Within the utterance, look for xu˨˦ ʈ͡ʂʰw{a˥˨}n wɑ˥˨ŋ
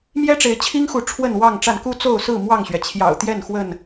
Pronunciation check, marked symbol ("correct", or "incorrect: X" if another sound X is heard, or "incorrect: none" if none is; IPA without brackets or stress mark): incorrect: ə˥˨